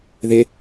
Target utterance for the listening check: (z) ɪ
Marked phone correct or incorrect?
incorrect